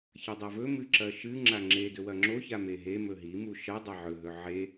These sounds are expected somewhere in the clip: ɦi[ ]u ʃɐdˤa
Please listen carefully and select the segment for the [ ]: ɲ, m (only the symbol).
m